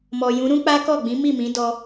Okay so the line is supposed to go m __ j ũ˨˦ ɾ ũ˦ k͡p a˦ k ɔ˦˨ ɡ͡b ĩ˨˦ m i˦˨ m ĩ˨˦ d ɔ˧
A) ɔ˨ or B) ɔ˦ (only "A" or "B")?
A